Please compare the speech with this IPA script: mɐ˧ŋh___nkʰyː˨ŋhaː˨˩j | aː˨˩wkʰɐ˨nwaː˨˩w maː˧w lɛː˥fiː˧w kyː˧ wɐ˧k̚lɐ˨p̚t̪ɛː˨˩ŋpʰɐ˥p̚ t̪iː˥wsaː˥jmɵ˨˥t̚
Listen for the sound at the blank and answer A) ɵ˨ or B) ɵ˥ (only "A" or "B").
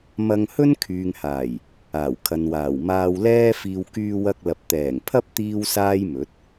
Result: B